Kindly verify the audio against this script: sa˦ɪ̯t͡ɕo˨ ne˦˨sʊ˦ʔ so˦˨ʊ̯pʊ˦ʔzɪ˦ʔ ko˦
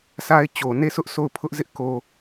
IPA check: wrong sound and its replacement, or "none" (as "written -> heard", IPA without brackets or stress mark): p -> pʰ